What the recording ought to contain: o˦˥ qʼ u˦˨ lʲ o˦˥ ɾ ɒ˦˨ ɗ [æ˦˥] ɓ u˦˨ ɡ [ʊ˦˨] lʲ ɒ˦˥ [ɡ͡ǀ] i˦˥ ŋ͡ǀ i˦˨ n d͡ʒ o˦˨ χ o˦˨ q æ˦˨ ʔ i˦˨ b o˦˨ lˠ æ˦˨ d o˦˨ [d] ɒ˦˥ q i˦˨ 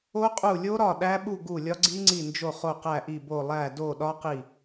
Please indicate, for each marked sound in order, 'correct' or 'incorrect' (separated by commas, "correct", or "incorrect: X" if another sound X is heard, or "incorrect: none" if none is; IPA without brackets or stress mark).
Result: correct, incorrect: u˦˨, correct, incorrect: ɗ